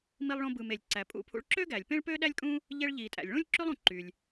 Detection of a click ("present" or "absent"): present